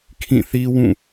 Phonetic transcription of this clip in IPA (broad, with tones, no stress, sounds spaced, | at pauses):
kʰ ĩ˦˨ θ i˦ w ũ˦˨